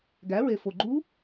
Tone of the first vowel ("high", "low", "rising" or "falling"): rising